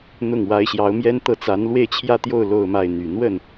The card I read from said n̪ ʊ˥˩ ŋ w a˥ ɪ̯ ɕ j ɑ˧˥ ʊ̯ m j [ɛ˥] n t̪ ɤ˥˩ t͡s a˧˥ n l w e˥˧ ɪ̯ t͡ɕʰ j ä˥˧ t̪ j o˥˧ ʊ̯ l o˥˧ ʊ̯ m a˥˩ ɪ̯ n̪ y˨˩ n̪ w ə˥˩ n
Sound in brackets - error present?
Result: no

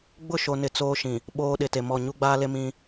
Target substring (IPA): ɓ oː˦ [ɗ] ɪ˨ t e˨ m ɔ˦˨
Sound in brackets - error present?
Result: no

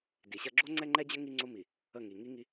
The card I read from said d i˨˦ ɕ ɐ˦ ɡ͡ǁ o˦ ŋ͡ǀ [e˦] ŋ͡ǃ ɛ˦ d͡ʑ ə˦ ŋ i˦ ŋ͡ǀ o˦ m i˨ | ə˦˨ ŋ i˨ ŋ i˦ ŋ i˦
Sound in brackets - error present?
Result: yes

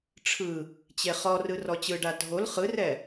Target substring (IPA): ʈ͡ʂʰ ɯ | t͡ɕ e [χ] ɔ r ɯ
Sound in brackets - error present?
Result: no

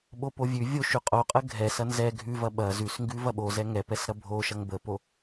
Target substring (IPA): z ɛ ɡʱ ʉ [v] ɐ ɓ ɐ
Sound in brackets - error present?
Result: no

